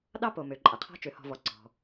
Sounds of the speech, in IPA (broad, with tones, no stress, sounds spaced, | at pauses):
ɗ ɑ˥ p o˩ m ø˩ ǃʼ ɐ˩ qʰ ɔ̤˦ t͡ʃ ø˩ h ɔ̤˨ v ɔ˩ ǀ ɔ̤˩